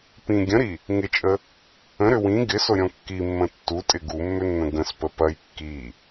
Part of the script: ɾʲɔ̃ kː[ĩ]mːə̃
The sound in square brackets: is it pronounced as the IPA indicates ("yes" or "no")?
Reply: no